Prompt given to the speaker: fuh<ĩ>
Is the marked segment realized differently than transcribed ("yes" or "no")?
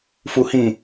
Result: no